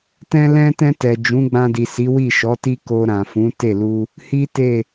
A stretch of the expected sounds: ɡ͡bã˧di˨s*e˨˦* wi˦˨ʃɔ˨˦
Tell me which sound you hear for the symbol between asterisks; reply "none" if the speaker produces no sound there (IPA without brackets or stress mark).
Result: i˨˦